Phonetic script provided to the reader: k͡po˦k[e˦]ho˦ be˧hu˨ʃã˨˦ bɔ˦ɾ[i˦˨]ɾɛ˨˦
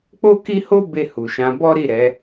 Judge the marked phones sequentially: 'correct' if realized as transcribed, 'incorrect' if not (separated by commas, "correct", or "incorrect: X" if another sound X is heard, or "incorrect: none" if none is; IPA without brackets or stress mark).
incorrect: i˦, correct